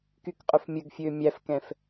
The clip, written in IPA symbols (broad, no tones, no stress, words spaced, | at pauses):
kykqʼɵfmʲɵɡfʲøː mʲæfkɛ̃f